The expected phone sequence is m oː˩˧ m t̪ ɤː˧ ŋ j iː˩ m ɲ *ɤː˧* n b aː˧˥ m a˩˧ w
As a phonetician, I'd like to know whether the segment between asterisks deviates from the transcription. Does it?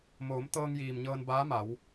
no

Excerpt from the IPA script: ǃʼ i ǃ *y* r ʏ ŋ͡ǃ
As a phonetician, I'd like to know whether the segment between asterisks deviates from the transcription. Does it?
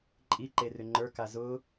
yes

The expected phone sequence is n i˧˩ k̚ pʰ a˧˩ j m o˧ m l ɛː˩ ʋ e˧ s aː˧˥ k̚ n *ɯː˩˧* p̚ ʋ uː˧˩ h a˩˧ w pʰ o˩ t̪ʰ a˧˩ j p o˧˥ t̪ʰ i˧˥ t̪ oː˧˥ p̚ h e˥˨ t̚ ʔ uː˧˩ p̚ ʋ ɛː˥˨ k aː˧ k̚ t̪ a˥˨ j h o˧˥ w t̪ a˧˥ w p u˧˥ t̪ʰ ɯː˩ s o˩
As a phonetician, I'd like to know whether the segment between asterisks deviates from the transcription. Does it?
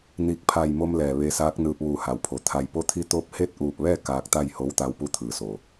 yes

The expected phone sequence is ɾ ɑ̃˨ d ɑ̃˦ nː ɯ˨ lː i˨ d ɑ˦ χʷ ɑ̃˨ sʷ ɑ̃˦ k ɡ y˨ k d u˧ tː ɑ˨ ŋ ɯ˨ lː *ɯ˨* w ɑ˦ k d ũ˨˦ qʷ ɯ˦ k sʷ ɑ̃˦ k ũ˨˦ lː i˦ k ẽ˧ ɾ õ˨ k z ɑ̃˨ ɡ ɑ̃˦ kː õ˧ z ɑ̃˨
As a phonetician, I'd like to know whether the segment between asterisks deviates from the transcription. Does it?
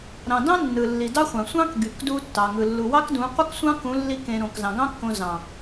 yes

